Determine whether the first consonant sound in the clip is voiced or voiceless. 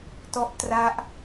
voiceless